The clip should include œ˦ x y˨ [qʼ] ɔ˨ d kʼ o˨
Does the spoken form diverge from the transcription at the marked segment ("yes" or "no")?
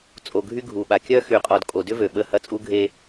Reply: no